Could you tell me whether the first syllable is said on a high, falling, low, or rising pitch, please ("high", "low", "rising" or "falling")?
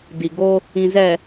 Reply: low